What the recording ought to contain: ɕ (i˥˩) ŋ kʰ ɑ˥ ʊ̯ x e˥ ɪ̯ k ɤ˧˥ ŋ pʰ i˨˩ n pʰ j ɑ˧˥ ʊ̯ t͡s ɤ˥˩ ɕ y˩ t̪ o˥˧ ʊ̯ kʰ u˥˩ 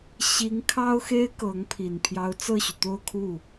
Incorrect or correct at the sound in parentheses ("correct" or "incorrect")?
incorrect